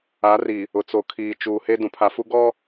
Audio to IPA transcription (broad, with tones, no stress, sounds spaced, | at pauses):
a˨˦ r i˨ | ʊ˨ t͡s o˨ kʰ iː˨ t͡ʃ uː˨ h e˦ d ũ˨ pʰ a˨ f u˦ ɡ ɔ˦